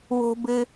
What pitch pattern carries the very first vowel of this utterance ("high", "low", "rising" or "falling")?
high